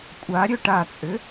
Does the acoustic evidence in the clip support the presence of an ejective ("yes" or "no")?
yes